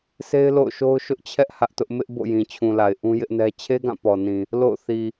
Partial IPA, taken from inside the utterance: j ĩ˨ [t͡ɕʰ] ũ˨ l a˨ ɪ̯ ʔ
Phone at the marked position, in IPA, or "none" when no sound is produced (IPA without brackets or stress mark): t͡ɕʰ